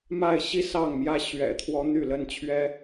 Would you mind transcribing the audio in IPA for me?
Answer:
ma˥˨ɪ̯ɕi˦ sɑ˥˨ŋmjä˦ ɕɥɛ̰˨˩t̪ʰwɔ˨˦ n̪y˥˨lə˦nt͡ɕʰɥɛ˦

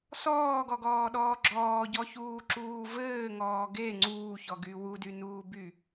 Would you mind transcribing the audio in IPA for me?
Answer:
sɔːɡɔɡɔːɗɔː ɡ͡ǁɔːɟɔçuːǁuː vɘːŋɔː ɡe ŋ͡ǀuːçɔɡy wudynuːby

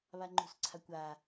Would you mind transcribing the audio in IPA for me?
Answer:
βaŋ͡ǃṳsǀʰakʷa

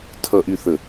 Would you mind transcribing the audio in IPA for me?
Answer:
tʰʌ˨ʔy˨θə˨

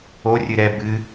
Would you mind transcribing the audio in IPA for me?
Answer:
o rʲɨɾɛ bɨ

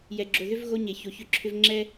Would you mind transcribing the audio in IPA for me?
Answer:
jɛ˨ɡ͡ǁo˨ðʏ˦v ɣo˦ ɲe˨ço˨çʏ˦ǁʰʏ˦v ŋ͡ǁɛ˦

